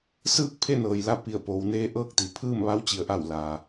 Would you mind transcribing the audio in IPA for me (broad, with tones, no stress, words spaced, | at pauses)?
sɯː˥˨k̚pʰe˥˨ nɤː˩jla˥˨ pi˧˩ə̯poː˩˧wneː˧˥ ʔɤː˥˨k̚t̪i˩ pʰɯː˥˨mʋa˧˥wt͡ɕi˩˧ə̯ʔa˧˩w la˩